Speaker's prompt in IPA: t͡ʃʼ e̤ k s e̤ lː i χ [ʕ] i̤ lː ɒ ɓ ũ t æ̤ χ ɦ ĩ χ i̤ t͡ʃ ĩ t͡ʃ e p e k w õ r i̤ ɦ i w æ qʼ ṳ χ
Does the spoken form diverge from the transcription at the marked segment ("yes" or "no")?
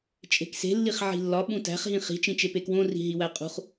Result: no